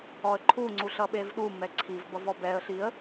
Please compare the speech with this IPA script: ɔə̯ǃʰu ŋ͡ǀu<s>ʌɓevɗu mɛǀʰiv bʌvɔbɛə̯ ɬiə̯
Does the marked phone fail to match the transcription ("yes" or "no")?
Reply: yes